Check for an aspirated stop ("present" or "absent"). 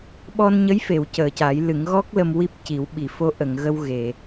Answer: absent